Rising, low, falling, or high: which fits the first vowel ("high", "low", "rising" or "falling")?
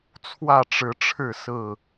falling